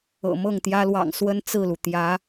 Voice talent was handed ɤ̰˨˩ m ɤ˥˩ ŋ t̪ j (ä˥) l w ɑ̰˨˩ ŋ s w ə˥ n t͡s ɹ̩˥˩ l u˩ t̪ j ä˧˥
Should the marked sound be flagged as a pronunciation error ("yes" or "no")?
no